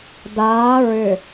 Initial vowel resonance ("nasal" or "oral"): oral